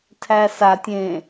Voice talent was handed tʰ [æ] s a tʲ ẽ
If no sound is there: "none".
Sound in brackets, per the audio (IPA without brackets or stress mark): æ